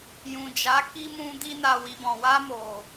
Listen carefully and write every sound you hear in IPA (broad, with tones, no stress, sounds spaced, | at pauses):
j ũ˨ d͡ʒ a˨˦ k i˧ m ũ˧ d i˧ n a˨ w i˨ b ɔ̃˨ w a˧ m o˨